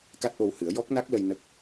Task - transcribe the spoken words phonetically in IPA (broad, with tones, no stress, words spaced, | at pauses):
ka˦˥t̚ʔo˧whɨ˨˩˦ə̯ jɔ˦˥k̚na˦˥k̚lə˧j nə˦˥k̚